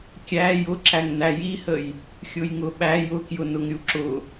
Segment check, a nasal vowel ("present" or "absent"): absent